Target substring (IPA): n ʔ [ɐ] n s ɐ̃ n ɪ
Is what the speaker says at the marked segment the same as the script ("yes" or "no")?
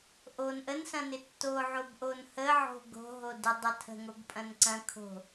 no